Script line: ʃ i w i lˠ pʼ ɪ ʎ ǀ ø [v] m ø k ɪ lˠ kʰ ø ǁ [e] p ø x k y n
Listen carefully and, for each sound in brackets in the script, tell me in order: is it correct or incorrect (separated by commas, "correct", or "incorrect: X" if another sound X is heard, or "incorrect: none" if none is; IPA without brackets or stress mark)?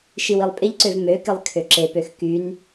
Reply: correct, correct